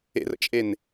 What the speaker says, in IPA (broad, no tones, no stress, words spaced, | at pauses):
ḛrə̰t͡ʃʼen